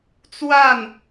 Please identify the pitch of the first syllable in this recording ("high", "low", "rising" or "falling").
falling